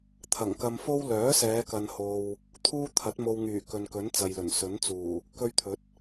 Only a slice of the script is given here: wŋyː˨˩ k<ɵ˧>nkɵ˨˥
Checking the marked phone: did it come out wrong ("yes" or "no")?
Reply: yes